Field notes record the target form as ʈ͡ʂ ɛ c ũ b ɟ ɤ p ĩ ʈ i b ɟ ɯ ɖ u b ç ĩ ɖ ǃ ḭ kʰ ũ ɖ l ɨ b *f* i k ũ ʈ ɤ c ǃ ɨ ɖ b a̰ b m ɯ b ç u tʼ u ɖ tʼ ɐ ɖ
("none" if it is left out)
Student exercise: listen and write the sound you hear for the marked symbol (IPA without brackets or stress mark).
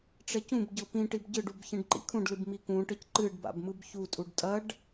m